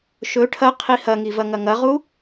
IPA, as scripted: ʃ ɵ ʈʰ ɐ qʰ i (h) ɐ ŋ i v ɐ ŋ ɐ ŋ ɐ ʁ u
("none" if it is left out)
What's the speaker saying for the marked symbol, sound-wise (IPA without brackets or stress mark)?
h